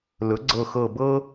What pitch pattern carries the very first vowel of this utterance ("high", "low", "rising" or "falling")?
rising